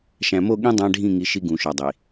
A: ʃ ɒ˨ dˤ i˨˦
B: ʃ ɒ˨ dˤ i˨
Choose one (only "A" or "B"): B